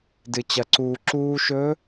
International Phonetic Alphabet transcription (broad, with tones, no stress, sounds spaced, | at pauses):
d ɨ˩ t͡ɕ ɐ˩ ǀ uː˩ ǁ uː˧ ʃ ɵ˧˥